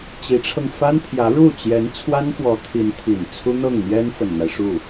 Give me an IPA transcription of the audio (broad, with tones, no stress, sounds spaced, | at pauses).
t͡ɕ i˧˥ ʈ͡ʂʰ ɤ˧ ŋ f a˥ n t̪ʰ j ä˧˥ ɻ u˥˩ t͡ɕ j ɛ˧˥ n t͡sʰ w a˥ n f w ɔ˧˥ t̪ʰ i˧˥ n t̪ʰ i˨˩ n t͡sʰ u˥ n̪ ɤ˥˩ ŋ n̪ j ɛ˥ n f ə˨˩ n n̪ a˦ ɪ̯ ʂ u˥˩